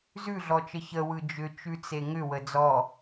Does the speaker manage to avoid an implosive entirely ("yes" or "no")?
yes